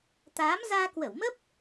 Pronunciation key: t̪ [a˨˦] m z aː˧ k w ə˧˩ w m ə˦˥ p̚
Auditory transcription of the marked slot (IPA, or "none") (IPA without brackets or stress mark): aː˨˦